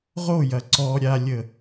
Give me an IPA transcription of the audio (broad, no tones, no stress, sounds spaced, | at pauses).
ʁ o j ɐ ǀ ɔ ɾʲ a lʲ ə